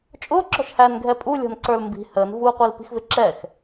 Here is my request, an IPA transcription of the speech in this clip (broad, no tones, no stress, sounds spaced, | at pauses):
t͡ʃʼ ʊː ǁ ɔ̤ ʃ h æː n ɡʱ ɛ pʼ u lʲ ɔ̤ n ǀ ə˞ l m b i̤ h əː n v uː qʷ i l p i̤ x v ɪ ǁ ɛ x